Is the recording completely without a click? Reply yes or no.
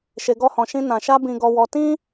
yes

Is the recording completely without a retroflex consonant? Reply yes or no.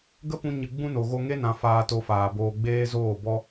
yes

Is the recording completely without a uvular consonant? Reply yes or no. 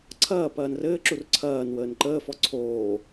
yes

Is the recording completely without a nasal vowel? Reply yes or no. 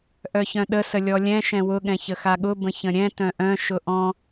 no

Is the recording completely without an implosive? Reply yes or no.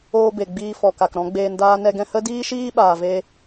no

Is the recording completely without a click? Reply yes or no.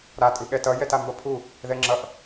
no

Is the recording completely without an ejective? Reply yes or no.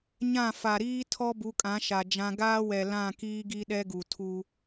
no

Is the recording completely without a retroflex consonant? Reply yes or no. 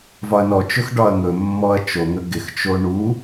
no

